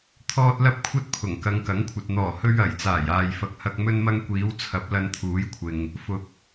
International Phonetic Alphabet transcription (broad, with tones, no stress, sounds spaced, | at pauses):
t̪ʰ ɔː˥ t̚ l ɐ˥ p̚ kʷʰ ɐ˥ t̚ pʰ ʊ˨˩ ŋ k ɐ˨˧ ŋ k ɐ˨˥ ŋ kʷʰ ɐ˨ t̚ n̪ ɔː˨˩ h ɵ˧ ɥ ɐ˨˩ j t͡s aː˨˩ j aː˨ j f ɐ˨ k̚ h ɐ˧ k̚ m ɵ˧ n m ɐ˧ ŋ kʷ iː˨˧ w t͡sʰ ɐ˨˥ p̚ l ɐ˧ n t̪ʰ uː˨˥ j kʷʰ ɪ˨ ŋ | f ʊ˨ k̚